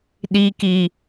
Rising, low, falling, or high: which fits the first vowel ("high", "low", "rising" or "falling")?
high